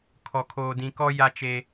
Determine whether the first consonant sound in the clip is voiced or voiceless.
voiceless